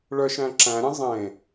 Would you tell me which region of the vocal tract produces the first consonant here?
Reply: retroflex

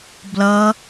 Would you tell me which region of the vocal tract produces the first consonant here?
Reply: lips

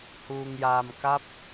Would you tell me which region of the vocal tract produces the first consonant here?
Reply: throat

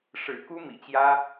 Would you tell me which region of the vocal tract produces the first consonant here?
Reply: retroflex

